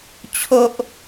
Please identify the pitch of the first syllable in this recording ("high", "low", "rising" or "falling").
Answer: high